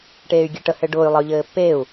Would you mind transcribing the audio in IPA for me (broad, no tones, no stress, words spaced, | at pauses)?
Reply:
ʈeːy̯ɡʲeʈə hɘɖʊːy̯ lˠəy̯ʎɘːpːeːu̯